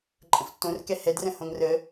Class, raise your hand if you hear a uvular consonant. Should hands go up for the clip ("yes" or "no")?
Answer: no